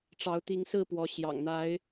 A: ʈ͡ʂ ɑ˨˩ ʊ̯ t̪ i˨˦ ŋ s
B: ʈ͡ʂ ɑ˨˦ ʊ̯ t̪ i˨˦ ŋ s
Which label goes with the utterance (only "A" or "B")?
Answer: B